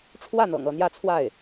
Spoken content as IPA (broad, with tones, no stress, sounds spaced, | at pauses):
ʈ͡ʂʰ w ä˥˩ n̪ ɤ̰˨˩ ŋ ɤ˥˧ n̪ j ä˥˧ t͡sʰ w a˥˩ ɪ̯